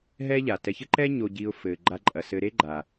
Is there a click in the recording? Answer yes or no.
yes